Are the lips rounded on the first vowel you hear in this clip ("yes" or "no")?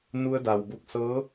yes